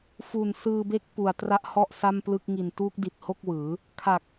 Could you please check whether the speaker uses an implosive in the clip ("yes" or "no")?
no